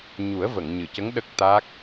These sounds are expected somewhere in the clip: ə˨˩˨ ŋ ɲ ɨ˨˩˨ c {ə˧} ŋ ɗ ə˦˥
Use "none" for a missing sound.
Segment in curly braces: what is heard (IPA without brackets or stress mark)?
ə˧˥